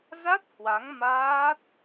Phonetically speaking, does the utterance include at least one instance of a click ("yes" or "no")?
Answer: no